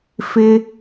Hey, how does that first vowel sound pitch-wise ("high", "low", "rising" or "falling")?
high